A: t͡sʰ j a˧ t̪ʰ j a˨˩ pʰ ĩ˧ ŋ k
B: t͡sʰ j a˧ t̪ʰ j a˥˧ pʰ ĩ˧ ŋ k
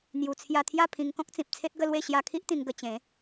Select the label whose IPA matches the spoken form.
B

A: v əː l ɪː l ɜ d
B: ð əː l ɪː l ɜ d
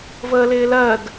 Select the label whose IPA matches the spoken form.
A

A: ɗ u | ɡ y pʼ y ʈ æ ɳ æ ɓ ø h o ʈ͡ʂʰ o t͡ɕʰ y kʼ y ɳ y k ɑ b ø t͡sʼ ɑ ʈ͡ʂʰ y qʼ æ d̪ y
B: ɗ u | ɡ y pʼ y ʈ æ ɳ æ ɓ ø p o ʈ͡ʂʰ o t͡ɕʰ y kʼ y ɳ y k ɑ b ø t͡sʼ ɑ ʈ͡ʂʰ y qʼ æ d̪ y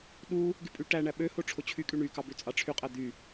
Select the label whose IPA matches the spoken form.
A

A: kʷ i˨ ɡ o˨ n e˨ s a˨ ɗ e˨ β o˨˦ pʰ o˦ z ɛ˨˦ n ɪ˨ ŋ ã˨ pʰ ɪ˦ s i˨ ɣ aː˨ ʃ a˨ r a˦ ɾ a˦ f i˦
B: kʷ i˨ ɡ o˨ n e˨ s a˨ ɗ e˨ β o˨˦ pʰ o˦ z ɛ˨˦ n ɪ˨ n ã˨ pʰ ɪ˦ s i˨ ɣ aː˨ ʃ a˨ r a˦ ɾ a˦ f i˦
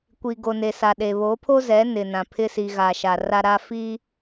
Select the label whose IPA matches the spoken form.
B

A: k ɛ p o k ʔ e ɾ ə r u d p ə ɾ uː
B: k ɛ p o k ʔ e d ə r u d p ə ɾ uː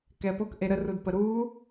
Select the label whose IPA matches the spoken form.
A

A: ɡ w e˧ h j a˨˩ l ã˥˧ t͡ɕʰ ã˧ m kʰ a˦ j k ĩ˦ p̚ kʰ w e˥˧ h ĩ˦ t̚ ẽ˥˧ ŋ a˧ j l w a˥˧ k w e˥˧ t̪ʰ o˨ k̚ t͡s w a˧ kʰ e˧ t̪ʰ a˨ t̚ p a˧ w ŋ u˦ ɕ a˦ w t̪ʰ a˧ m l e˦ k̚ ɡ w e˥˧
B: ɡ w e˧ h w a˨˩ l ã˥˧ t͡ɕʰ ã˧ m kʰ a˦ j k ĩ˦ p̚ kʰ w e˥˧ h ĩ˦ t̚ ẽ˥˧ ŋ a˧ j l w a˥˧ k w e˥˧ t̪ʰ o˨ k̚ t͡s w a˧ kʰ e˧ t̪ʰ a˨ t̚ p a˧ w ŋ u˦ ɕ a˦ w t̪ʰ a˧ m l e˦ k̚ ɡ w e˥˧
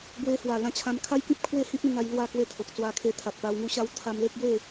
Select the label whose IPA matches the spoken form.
B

